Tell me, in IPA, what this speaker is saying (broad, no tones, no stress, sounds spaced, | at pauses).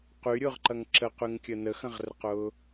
q y ɾʲ ʊː ʁ ǃ ɐ ŋ ǁ ə q y ŋ kʲ ə n ə x ɐ̃ ʁ r ə q ʊː